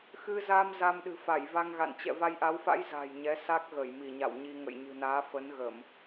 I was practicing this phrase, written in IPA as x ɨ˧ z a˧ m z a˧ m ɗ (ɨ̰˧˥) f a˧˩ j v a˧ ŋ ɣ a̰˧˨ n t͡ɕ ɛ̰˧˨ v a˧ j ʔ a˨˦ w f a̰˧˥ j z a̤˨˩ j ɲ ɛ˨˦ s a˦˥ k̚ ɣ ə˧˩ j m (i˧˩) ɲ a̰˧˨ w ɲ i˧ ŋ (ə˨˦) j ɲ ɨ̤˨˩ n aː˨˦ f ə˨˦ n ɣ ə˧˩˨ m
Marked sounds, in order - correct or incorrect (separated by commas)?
incorrect, correct, incorrect